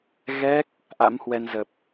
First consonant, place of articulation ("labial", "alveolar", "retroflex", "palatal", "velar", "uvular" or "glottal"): velar